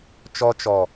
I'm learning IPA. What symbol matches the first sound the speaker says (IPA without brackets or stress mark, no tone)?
t͡ʃ